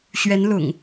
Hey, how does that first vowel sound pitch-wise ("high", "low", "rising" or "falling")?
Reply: rising